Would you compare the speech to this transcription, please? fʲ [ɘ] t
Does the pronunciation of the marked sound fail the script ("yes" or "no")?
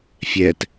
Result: yes